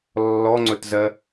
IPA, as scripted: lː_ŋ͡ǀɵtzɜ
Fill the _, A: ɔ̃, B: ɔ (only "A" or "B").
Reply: B